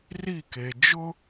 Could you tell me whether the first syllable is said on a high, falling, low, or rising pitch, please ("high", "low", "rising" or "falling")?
falling